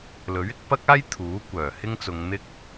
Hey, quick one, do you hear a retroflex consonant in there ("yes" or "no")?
no